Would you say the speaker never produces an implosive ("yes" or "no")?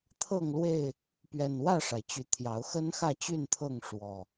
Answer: yes